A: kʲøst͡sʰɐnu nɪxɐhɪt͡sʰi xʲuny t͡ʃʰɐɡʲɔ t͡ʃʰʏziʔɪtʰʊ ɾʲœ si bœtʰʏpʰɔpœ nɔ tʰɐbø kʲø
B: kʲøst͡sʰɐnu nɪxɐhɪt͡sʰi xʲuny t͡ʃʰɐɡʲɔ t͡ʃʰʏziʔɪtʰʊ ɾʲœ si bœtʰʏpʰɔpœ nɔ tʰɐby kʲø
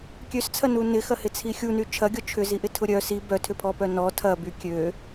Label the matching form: B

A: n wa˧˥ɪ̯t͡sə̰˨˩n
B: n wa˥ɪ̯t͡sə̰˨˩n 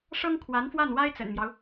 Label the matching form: B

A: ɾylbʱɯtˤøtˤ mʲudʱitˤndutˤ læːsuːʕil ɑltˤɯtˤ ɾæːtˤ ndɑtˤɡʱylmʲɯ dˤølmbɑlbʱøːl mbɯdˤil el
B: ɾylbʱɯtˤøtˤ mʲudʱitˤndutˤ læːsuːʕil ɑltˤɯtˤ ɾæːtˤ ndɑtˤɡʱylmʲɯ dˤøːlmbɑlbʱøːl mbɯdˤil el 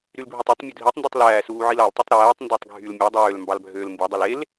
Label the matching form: B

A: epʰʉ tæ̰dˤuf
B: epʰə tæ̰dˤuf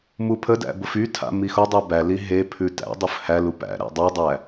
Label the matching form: A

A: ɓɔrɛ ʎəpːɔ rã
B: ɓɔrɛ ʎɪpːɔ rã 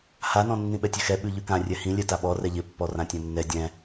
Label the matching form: B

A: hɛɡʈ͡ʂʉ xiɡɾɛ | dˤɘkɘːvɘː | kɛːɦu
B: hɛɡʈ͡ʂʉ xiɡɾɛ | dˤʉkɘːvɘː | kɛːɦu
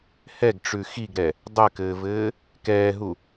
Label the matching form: A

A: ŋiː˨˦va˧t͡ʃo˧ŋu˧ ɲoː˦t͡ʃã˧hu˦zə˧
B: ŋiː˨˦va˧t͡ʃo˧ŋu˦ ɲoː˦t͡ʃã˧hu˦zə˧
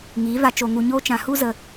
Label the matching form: A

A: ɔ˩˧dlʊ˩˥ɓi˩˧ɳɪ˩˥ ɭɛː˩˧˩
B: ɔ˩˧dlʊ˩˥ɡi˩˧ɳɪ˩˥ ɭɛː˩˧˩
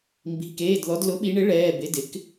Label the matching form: A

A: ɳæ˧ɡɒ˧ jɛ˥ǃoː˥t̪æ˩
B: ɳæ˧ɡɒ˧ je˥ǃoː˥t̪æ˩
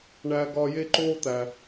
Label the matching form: B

